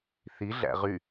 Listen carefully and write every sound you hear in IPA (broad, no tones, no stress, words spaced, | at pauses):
θiɮæ̰ ʁy